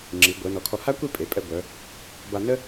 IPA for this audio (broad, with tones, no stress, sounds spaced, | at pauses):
ŋ͡ǁ i˩˧ ɡʷ œ˩˧ n ɔ˩˧ kʰ ɔ˧˩ h a˥ kʷ i˥˧ pʼ e˩˧ pʼ ɛ˧ ɡʷ œ˩˧ | b a˧ n ə˥